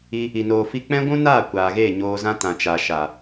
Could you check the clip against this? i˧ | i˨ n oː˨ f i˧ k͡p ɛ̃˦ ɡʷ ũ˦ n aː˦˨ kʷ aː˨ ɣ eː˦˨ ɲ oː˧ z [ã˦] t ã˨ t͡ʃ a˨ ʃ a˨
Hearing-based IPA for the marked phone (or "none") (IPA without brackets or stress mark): ã˦